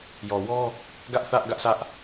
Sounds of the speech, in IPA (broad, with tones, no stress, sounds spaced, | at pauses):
j ɔ˨ w ɔ˦ | ɡ ä˦ ʔ θ ä˦ ʔ ɡ ä˦ ʔ sʰ ä˦ ʔ